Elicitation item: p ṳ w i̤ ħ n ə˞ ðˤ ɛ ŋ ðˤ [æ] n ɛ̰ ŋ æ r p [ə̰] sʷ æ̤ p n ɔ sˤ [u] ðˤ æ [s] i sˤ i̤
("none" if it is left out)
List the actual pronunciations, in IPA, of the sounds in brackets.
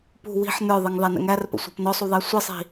æ, ə̰, u, sʷ

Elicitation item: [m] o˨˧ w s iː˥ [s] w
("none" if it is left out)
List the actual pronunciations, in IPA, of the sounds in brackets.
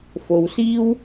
f, none

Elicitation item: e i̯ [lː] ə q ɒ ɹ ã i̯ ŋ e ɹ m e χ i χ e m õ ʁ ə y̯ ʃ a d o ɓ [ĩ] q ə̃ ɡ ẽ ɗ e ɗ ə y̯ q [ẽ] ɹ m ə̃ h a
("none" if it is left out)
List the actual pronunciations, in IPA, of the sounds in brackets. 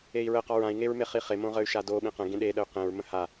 ɹ, ĩ, ẽ

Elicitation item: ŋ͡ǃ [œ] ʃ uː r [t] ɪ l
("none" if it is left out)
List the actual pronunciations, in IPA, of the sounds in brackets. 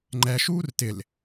ɛ, t

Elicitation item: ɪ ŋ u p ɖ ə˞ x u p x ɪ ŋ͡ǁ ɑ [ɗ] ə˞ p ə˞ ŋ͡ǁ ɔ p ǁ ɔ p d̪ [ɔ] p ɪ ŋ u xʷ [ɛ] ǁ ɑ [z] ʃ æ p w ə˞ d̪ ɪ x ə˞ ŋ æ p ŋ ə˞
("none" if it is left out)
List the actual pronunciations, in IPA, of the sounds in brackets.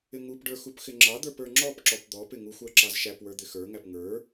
d̪, ɔ, æ, z

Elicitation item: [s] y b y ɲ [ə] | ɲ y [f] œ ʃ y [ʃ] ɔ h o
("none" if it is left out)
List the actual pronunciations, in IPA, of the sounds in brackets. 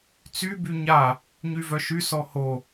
t͡s, a, v, s

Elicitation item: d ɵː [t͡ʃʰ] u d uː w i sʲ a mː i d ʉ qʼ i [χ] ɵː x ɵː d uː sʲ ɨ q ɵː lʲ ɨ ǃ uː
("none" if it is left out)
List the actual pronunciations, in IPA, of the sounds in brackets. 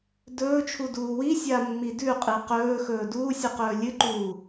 t͡ʃʰ, q

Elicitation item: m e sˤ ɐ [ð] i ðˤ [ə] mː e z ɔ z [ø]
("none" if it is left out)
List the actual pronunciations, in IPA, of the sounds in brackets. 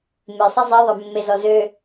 zˤ, ə, ø

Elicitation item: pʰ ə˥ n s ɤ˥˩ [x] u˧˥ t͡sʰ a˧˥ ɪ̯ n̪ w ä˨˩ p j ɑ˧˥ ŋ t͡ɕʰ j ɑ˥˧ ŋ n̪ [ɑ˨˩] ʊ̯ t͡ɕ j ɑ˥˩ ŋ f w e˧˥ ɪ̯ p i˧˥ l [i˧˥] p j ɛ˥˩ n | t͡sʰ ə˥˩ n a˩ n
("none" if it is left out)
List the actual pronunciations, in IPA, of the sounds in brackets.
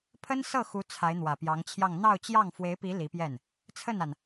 x, ɑ˥˧, i˧˥

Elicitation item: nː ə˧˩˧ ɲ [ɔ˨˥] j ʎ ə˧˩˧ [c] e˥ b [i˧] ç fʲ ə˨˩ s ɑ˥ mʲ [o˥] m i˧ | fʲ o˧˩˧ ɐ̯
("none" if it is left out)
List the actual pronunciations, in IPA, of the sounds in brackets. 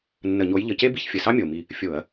o˨˥, c, i˨˥, o˨˩

